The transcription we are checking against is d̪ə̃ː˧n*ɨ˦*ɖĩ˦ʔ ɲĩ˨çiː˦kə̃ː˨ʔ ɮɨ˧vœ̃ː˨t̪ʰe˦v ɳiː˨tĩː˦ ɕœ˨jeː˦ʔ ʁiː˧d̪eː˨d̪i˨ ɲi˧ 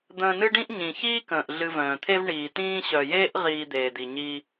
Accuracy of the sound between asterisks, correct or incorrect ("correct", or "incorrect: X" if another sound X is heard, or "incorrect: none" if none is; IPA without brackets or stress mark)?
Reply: correct